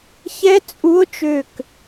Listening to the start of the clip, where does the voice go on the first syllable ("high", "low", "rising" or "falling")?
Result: rising